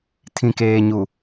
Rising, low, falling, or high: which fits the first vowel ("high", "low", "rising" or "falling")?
low